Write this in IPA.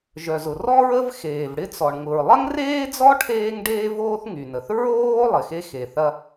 ʒ œ˩ z ʊ˩ r ɔ˥ ɹ ə˥ v x eː˩ v ɽ ɪ˥ t͡s ɔ˩ ɳ ŋ ʊ˩ ɹ lˠ ɐ˥ ŋ r eː˥ d͡z ɔ˥ ʈʰ eː˥ ŋ ɖ eː˥ v oː˥ θ ŋ y˩ n ə˩ θ ɹ oː˥ lˠ ɪ˩ x e˥ x e˩ θ ɐ˥

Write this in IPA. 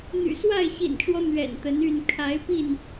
n̪ y̰˨˩ s w a˥˨ ɪ̯ ɕ ḭ˨˩ n ʈ͡ʂ w ɔ˦ n̪ ɥ ɛ̰˨˩ n t̪ ə˨˦ n y˥˨ n kʰ a˨˦ ɪ̯ p i˥˨ n

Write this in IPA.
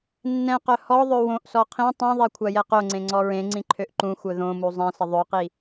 nː ɛ̃ q œ h ɔ ðˤ ø w õ ʔ s ɔ qʰ ĩ tˤ ĩ ðˤ ɛ kʷʰ a j ɛ q o ŋ͡ǀ ẽ ŋ͡ǀ ɔ ɹ ẽ ŋ͡ǀ ĩ ǃʰ ø ʔ ǃ ũ xʷ œ ð õ m u zˤ ɛ̃ s ə ðˤ ø q i

